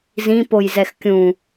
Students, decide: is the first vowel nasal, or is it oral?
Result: nasal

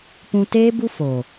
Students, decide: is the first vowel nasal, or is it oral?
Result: nasal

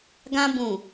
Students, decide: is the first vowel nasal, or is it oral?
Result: nasal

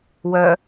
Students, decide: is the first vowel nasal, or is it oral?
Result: oral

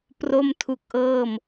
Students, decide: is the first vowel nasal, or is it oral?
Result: oral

